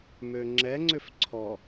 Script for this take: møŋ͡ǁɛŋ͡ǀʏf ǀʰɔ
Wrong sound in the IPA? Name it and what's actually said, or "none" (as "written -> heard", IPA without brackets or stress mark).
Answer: none